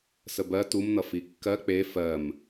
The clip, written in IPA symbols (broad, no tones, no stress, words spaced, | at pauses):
səbɜ tumnʌ fikːɜ k͡pe fɜm